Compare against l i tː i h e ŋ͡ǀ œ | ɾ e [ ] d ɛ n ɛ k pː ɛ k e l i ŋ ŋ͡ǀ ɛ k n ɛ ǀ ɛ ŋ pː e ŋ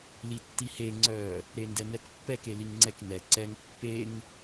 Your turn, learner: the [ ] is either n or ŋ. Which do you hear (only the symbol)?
n